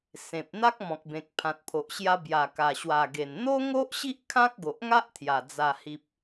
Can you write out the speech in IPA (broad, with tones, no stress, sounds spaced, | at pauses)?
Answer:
s ẽ˨ p̚ n̪ a˦ k̚ m ɔ̃˨ k̚ b ẽ˨ k̚ pʰ ã˨ t̚ pʰ o˨ ʔ ɕ j a˧ b j a˨˩ k a˨˩ ɕ w a˨˩ ɡ e˨˩ n n̪ o˦ ŋ o˦ ʔ ɕ i˦ ʔ kʰ ã˦ k̚ ɡ o˨ ʔ ŋ a˦ ʔ t̪ʰ j a˨˩ d͡z a˨˩ h i˨ p̚